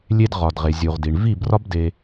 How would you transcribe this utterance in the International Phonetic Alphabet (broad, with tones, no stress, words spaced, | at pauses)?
lʲe˧d ʁɒ˨d ʁe˨zʲu˨ʁdi˨ɳ vi˦˨brɒ˦bde˧